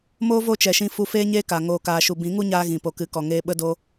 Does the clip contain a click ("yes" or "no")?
no